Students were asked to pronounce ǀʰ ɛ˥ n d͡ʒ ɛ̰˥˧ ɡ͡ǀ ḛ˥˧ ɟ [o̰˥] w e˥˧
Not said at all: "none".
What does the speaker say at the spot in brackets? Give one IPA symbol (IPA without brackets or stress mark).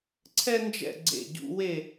ṵ˥